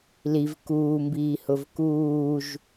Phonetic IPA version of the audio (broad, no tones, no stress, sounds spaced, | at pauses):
l i v k uː m b iː h ʊ v k uː ʒ